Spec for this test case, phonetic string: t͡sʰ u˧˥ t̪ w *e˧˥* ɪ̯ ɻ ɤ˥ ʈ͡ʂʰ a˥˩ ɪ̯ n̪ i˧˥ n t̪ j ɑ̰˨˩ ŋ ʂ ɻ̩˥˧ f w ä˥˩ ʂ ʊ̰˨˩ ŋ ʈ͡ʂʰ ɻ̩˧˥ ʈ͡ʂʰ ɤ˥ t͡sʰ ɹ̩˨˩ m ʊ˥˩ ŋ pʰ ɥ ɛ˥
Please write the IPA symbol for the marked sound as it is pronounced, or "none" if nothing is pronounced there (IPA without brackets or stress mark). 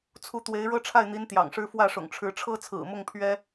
e˧˥